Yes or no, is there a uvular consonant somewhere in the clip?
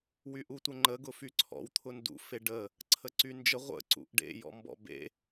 yes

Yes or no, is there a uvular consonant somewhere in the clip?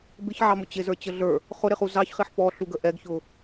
yes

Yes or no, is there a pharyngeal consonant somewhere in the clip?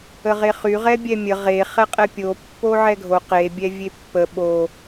yes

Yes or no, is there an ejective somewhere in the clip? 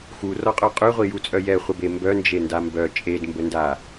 yes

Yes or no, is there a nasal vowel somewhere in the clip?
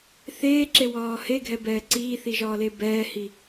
no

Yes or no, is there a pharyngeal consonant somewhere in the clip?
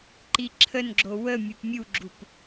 no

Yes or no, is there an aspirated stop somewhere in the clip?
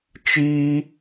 no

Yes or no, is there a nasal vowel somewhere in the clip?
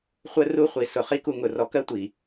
no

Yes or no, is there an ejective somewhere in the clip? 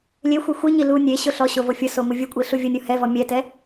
yes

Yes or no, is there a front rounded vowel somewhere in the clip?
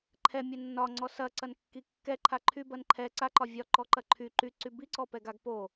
yes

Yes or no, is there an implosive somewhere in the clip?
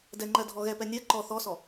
no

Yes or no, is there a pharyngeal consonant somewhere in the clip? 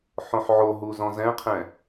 yes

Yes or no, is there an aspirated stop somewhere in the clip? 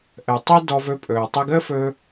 no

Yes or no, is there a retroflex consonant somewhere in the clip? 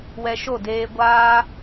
no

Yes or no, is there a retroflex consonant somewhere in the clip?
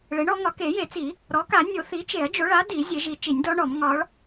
yes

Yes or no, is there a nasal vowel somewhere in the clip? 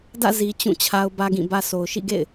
yes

